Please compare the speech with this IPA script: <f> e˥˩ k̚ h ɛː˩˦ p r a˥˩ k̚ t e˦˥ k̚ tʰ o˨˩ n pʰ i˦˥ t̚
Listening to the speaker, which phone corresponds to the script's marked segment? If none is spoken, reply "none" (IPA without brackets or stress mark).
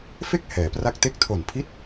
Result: f